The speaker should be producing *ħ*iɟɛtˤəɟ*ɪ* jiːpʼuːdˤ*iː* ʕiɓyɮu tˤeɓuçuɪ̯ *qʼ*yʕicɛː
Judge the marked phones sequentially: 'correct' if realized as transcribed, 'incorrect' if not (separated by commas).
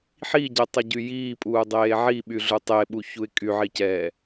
correct, incorrect, incorrect, incorrect